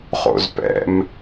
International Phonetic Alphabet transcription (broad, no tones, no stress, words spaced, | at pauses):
χo̰zpɛ̰m